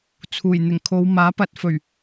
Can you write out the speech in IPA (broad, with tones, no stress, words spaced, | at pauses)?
t͡sʰuː˨˩j n̪ɪ˨˩ŋkʰo˨˧wmaː˨˥ pɐ˨˥t̚fɵ˨˩ɥ